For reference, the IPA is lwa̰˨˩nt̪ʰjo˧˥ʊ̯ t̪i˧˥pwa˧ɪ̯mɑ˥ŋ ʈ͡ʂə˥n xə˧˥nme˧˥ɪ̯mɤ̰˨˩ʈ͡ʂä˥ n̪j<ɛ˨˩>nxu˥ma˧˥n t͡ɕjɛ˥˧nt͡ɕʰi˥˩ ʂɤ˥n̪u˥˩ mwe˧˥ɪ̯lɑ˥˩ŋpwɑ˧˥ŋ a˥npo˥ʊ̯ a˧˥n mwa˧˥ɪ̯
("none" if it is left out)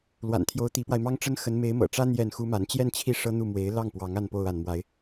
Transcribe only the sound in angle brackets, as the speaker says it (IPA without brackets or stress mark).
ɛ˥˩